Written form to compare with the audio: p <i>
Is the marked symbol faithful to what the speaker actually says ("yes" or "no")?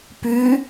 no